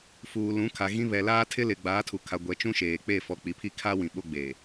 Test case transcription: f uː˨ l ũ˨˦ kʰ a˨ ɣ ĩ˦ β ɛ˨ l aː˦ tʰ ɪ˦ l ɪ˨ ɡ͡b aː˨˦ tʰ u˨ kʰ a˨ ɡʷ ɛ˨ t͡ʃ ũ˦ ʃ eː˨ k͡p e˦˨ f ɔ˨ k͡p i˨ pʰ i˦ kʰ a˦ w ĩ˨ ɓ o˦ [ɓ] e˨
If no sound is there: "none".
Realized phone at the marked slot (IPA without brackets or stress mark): ɡ͡b